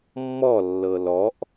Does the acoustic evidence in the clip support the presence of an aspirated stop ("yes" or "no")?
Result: no